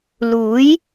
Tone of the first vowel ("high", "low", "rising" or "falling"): rising